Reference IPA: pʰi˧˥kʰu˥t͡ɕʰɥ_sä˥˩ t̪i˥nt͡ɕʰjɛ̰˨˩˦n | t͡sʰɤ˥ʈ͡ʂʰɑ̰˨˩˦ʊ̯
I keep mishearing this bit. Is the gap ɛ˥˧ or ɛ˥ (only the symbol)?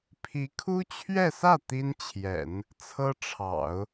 ɛ˥˧